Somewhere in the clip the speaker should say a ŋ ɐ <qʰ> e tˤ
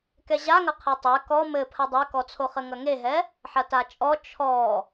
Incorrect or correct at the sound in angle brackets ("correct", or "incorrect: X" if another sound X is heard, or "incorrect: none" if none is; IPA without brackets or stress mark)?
correct